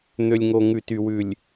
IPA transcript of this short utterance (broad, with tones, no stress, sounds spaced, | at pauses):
n̪ ø˨ lʲ ŋ o˨ ŋ ʉ˨ t y˨ w ʉ˨ lʲ